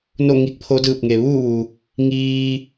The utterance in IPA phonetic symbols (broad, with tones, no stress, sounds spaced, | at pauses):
n o˥˨ ŋ i˧ k̚ pʰ o˧˥ d ɯː˧˩ p̚ ŋ e˩ ʋ uː˥˨ ʋ u˩ | ŋ iː˧